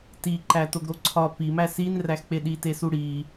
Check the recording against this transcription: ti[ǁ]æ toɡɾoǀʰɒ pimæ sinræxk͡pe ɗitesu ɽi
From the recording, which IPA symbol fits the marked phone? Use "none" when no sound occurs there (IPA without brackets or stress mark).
ǃ